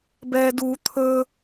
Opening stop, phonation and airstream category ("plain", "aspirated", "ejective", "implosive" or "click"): plain